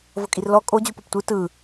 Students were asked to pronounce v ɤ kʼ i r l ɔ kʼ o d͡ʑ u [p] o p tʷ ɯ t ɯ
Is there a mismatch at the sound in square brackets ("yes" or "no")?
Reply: no